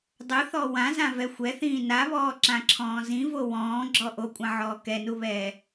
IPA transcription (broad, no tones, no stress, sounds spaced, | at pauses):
dˤ u θ ɔ w ã z ã v ɛ xʷ ɛ θ ĩː n a β ɔː ǁ ã ǁʰ ɔ̃ː z ĩ v o w ɔ̃ː ɡ͡ǁ ɔ ʔ o kʷʼ ã ʕ ɔː k ɛ n u β ɛː